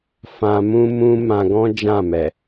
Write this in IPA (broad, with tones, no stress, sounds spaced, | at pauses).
f ã˧ m ũ˦ m ũ˦ m ã˧ ɡ ɔ̃˦ d͡ʒ ã˦˨ m ɛ˨